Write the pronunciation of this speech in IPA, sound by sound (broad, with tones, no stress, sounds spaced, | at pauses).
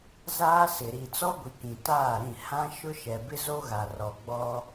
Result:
z aː˦ s ɪ˨ ɾ i˨ t͡s ɔ˦ ɡʷ i˨ k ĩ˨ t aː˦˨ ɾ ĩ˦˨ h ã˦ ʃ ʊ˦ ʃ ɛ˨ b ɪ˦ z o˦ ɣ a˨ r ɔ˨ ɡ͡b ɔ˦